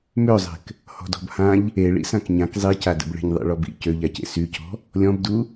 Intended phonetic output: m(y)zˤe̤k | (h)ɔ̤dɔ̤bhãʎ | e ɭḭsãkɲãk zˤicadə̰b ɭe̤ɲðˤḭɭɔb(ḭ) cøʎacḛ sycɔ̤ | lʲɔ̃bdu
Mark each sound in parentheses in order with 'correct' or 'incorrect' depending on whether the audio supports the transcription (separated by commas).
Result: incorrect, correct, correct